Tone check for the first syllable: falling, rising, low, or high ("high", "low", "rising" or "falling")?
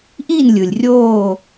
falling